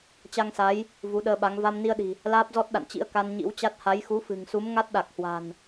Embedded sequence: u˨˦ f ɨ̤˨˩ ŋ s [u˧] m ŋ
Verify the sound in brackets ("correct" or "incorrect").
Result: incorrect